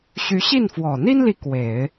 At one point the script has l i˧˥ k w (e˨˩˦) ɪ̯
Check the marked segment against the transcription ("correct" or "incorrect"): correct